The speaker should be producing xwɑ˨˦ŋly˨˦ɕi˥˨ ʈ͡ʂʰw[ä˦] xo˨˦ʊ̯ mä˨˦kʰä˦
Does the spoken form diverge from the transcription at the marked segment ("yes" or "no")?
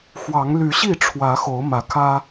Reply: yes